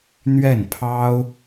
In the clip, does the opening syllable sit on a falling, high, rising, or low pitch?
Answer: falling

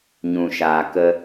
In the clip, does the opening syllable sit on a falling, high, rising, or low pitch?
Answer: low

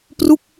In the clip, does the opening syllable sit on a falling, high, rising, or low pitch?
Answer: falling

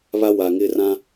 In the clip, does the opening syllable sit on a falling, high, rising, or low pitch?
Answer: high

